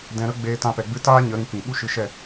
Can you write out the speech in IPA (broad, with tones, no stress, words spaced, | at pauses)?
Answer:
dɛ̃˧ɾə˦ɡ͡beː˧ tã˧pɛ˨ ɡ͡bɨ˦ taː˦ɲə˨˦ ɾĩ˧kĩ˨ ɓu˦ʃɨ˧ʃɛ˦˨